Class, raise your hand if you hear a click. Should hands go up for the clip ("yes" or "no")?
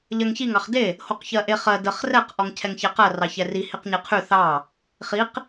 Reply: no